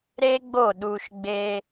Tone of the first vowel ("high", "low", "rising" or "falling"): high